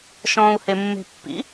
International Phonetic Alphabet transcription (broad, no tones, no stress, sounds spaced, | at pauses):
ʃ ɔ̃ː u̯ h e mː e̤ pː ḭ